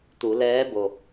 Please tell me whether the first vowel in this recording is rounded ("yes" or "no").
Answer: yes